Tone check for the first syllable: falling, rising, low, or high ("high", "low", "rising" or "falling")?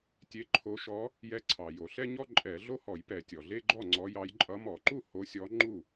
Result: rising